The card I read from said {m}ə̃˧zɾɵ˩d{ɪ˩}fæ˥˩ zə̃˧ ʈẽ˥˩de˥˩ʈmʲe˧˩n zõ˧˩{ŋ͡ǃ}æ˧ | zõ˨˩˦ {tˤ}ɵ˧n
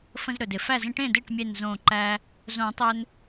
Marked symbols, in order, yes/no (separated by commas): no, yes, no, yes